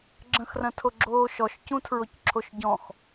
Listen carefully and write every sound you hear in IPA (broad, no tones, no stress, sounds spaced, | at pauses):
ɡ͡ǁ ə̃ x r ɐ̃ tʰ o ɡ͡ǁ oː ʃ ɔ ʃ c ũ tʰ ɹ o c ǁʰ o ʃ ɟ ɔ̃ x